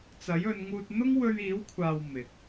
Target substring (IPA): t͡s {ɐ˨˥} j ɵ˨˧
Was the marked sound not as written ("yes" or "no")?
no